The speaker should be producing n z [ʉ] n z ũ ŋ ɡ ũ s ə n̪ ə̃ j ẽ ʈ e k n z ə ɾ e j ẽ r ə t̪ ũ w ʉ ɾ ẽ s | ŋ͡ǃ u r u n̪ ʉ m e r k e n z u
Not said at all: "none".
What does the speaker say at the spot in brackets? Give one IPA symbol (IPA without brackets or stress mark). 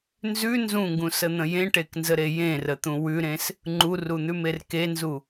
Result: ʉ